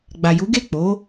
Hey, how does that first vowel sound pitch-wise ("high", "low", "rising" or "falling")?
low